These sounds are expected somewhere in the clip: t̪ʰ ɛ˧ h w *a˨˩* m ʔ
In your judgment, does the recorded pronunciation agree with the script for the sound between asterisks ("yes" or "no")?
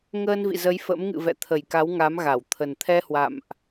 no